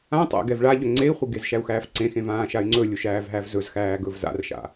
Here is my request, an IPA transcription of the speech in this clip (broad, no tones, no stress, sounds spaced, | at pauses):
ã tˤ æ̰ ɡ ɛ v ɭ a ʎ ɵ ŋ͡ǀ e i̯ χʷ e ɡ e z ʃ æ u̯ x æː f ǀ ẽ x ẽ v ãː ʃ a y̯ ŋ͡ǀ ɵ lʲ u ʃ æː v ɦ æ v z ɵ z x æː ɡ ɵ v z a̰ r ʃ a̰